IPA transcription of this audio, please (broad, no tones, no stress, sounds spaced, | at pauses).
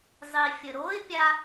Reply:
zˤ i fʲ ə ɾ o ɪ̯ pʲ a